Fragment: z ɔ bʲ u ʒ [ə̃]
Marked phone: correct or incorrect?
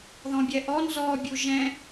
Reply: incorrect